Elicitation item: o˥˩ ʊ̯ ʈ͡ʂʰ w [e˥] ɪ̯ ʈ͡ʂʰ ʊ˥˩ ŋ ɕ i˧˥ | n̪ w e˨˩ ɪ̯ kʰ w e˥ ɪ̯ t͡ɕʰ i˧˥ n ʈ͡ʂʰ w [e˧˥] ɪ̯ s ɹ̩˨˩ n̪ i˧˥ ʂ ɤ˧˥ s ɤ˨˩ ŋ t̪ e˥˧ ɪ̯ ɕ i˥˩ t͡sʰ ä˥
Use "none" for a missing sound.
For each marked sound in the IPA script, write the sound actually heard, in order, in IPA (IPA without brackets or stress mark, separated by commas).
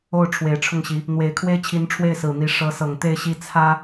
e˨˩, e˥˩